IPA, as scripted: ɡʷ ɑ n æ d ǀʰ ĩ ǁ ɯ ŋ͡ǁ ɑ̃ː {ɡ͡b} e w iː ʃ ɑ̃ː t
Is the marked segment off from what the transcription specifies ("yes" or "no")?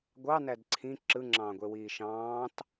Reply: yes